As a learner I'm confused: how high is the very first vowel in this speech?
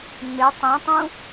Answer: high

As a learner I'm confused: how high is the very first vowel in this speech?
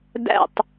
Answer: low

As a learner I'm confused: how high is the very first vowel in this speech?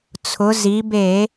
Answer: high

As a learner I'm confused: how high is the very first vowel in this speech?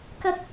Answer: low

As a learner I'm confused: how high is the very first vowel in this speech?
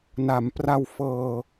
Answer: low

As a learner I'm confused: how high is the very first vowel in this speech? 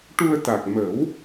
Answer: high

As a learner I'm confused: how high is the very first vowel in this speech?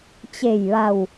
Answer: mid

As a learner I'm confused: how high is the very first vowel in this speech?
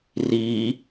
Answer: high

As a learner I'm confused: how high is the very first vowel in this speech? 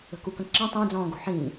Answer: mid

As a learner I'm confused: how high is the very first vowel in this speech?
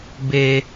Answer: mid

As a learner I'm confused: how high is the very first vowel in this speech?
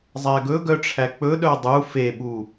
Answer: low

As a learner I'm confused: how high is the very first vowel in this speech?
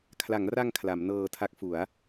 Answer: low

